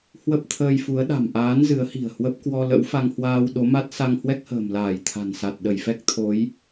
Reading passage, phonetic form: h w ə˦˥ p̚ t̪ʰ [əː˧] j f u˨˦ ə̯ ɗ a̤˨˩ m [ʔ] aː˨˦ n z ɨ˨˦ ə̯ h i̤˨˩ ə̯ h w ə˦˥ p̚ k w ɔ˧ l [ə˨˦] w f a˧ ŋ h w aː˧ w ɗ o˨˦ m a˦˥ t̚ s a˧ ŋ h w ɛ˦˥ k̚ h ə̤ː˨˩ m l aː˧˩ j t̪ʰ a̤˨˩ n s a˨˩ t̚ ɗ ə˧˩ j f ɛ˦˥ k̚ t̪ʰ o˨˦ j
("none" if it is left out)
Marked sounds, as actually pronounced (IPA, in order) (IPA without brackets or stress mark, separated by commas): əː˧, ʔ, ə̰˧˥